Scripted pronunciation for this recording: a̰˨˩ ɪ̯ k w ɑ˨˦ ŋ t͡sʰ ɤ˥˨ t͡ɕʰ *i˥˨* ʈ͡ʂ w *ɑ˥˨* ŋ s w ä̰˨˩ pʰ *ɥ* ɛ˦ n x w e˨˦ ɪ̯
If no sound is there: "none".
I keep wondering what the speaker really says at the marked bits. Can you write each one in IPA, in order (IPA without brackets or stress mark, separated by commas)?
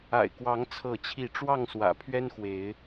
i˥˨, ɑ˥˨, ɥ